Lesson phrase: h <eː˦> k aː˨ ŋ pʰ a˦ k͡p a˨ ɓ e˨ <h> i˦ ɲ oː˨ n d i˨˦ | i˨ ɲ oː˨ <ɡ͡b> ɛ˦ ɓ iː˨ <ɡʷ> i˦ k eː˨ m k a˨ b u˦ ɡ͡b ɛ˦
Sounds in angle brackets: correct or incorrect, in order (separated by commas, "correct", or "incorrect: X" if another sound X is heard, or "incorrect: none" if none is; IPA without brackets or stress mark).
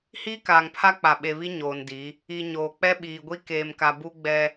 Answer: incorrect: iː˦, incorrect: β, incorrect: k͡p, correct